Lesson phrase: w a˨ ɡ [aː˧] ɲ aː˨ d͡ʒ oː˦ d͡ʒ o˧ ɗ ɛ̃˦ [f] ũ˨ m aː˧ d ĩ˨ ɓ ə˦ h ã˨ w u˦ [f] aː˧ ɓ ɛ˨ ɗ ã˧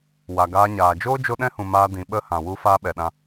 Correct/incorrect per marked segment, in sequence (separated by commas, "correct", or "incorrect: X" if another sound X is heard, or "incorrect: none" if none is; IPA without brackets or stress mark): correct, incorrect: h, correct